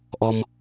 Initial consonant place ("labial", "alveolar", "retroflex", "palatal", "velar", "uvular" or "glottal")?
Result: glottal